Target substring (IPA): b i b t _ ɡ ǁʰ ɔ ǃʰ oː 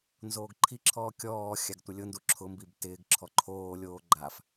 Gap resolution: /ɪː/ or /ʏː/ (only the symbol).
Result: ɪː